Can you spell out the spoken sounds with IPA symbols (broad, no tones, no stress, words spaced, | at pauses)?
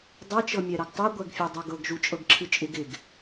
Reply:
dˤɛt͡ʃɤmʲɛɾɤɡ tˤɨ ɡʷɛɡfʲɤdˤoɡɤɡ ʒut͡ʃʼɤɡǁʰɨt͡ʃʼɪɡ ɪɡ